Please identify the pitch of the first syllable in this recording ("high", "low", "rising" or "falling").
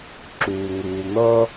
low